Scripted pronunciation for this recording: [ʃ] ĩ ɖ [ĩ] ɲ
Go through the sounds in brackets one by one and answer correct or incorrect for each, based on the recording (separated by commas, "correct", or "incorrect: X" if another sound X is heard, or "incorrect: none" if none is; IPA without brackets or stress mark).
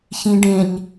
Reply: incorrect: ç, incorrect: ẽ